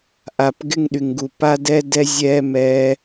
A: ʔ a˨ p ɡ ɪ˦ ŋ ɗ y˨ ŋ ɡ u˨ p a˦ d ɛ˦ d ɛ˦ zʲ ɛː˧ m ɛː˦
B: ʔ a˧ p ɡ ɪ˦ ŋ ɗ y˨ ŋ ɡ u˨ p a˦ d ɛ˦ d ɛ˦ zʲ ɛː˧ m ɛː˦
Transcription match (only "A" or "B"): B